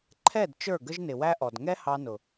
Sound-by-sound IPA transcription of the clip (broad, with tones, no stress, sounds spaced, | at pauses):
ǃʰ ɛ˦˨ d t͡ʃ ə˞˦˨ ɡ ə˦ ʒ n ɪ˨ w æ˦ ʔ ɔ˨ d ŋ ɛ˦ h ɑ˧ n ʊ˨